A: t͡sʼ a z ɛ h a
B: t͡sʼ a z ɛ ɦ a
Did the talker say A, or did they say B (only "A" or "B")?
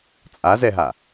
B